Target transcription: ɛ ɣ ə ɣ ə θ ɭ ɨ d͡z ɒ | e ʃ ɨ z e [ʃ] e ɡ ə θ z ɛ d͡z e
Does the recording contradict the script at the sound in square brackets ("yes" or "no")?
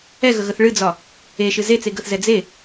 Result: yes